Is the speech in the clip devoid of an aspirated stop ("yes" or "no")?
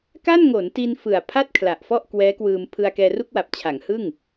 no